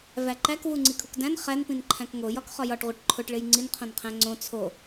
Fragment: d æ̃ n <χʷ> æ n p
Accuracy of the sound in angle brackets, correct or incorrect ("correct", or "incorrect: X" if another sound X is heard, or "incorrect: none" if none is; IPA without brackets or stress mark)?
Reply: incorrect: χ